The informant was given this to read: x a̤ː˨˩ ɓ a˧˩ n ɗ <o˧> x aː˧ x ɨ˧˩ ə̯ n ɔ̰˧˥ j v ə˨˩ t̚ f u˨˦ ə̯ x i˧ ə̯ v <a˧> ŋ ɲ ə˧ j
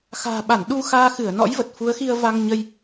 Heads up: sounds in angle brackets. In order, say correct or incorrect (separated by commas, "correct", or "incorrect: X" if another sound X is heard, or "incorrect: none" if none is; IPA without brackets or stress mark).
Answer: incorrect: u˧, correct